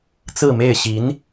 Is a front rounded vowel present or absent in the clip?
absent